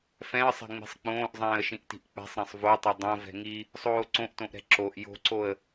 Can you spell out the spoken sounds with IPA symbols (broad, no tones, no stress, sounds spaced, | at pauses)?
f ɛ̃ ə̯ sˤ ɛ̤ ŋ͡m i̤ sˤ k͡p õː ʔ zˤ ɛ̃ː ə̯ ʃ ĩ ʔ t i̤ ʔ k͡p ɛ̤ sˤ ɾ ɛ̃ sˤ v o tˤ ɛ dˤ õ v ɛ̤ ŋ i | sˤ oː ǀ õ ʔ t õ ʔ ɾ ɛ̤ ǁ o ʔ j o̤ ǀ o ə̯